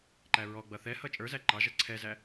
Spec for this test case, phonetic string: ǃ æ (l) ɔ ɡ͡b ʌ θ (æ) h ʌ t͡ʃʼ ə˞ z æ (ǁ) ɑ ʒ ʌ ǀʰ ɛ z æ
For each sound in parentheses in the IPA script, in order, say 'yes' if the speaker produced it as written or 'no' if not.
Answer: no, no, no

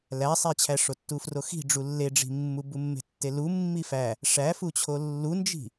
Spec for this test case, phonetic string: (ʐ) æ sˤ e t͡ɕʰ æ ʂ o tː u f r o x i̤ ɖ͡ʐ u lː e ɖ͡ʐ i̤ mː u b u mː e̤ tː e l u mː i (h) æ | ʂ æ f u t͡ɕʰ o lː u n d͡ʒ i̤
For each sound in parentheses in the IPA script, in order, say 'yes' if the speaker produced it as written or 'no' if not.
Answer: no, no

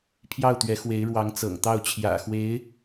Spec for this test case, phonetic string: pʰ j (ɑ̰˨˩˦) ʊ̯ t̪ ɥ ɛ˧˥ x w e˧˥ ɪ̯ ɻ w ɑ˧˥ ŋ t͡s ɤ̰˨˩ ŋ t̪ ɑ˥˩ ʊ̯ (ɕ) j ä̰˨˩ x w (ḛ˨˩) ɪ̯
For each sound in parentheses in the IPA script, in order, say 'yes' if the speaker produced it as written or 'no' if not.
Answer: no, no, no

